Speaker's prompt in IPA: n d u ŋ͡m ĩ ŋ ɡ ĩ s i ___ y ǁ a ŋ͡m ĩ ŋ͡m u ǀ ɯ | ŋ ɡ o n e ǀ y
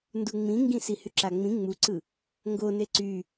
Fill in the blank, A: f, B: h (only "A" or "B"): B